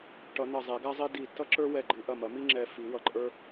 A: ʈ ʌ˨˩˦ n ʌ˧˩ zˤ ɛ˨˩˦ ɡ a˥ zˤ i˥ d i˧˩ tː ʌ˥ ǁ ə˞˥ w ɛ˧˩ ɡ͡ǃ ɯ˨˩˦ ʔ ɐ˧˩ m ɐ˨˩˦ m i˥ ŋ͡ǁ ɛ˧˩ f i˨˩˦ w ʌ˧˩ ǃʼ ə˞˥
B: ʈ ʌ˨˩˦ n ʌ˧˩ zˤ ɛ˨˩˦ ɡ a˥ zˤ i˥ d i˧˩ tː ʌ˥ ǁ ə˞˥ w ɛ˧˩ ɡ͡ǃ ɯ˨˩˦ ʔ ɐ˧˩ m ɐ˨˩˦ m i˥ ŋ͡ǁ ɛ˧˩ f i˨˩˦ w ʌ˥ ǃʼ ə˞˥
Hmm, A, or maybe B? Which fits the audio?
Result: A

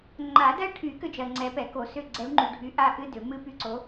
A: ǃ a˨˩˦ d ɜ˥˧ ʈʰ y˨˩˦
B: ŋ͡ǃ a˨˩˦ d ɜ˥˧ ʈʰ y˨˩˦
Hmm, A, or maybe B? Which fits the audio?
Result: B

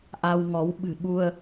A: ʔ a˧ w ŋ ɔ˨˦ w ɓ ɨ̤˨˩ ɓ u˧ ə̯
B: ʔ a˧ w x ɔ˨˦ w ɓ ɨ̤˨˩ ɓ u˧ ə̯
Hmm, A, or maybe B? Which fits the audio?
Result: A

